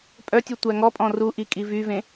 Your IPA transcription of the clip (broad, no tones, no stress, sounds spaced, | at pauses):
pʼ œ tʲ u tʷ æ ŋ ɔ pʼ ɔ̃ r u ʔ i kʼ i v y v ẽ